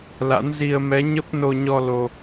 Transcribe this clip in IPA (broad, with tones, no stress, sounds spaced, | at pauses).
l a̰˧˥ n z i˧ ə̯ m ɛ˨˦ ɲ ə˦˥ p̚ n o˧ ɲ ɔ˧ l o˧